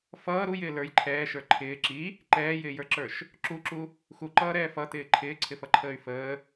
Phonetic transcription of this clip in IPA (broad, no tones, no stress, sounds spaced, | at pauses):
f ʌː ɾ u j ɪː l ə˞ j ǃʰ ɛː ʃ ə˞ ǃʰ ɪː ǁ i | ǃ ɛː j ɪː j ə˞ ǁ ə˞ ʃ | ǁ u ǁ u | x u ǃ ʌː ɾ ɛː f ʌ t ɪː ǃʰ ɪː ǀʰ ɪ f ʌ ǃʰ əː y̯ f əː